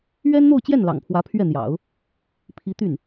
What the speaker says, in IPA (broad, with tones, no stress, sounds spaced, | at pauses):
ɥ ɛ˥ n n̪ o˥˧ ʊ̯ t͡ɕ j ɛ˥˩ n l ɑ̰˨˩ ŋ pʰ w ä˧˥ pʰ ɥ ɛ˥˩ n̪ j ɑ̰˨˩˦ ʊ̯ | pʰ i˧˥ t̪ y˥˩ n